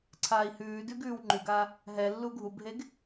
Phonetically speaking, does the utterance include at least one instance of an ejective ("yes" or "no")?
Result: no